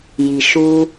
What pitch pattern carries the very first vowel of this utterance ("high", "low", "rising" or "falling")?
low